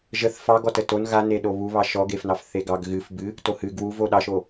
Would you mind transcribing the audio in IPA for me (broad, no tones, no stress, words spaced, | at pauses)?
ʒəθ fɑɡɔ təton ɣa neɗoβuβɑ ʃɔɡefnɑf θeɡɑɡ ɣɨf bɨ | tohɨ ɡwuv oɗɑʃo